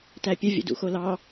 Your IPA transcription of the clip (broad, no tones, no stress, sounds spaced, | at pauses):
t æ pʲ ə vʲ ə̰ d ṵ x o l ɑ